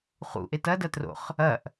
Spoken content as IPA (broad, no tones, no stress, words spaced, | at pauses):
χṵʔe tɐdɐtro̰χ | ɐʔ